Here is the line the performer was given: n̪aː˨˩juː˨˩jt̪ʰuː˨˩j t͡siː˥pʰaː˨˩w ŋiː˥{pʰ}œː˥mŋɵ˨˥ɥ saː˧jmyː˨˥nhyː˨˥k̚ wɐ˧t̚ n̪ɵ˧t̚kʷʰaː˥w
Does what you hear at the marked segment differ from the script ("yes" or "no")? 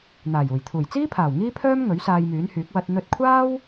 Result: no